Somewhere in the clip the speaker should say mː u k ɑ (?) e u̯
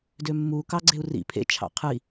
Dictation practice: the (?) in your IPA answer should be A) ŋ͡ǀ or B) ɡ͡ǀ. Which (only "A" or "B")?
B